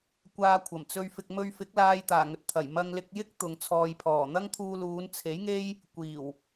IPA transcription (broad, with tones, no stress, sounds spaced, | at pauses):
kʷ aː˧ kʷʰ ɐ˨˩ m t͡s ɵ˧ ɥ f ɪ˧ k̚ m ɵ˧ ɥ f ɪ˨˥ k̚ l aː˧ j t̪ aː˨˩ ŋ ɵ˨ t̚ t̪ʰ ɐ˨˩ j m ɐ˧ ŋ l ɪ˧ k̚ j ɪ˥ k̚ t̪ ʊ˨ ŋ t͡sʰ ɔː˨ j pʰ ɔː˨˩ n̪ ɐ˥ ŋ t̪ʰ uː˧ l uː˨˧ n t͡sʰ e˨˥ j ŋ e˥ j | kʷ iː˨˩ w